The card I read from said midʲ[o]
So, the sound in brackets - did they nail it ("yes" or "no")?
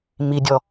no